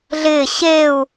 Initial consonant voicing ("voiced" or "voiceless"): voiced